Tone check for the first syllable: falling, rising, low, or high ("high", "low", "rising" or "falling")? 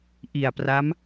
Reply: low